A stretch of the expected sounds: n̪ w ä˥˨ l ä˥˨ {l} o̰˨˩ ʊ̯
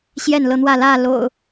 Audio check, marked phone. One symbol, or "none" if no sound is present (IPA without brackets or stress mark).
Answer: l